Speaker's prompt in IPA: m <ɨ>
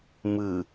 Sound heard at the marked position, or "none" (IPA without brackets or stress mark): ɨ